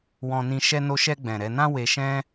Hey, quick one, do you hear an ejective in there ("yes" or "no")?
no